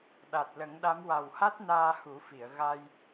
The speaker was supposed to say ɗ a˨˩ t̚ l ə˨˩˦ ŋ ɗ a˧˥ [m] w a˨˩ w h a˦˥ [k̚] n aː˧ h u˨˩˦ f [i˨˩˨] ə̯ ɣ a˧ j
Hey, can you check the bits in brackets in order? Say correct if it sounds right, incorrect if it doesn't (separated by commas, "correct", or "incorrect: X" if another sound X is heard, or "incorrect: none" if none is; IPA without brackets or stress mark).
correct, incorrect: t̚, correct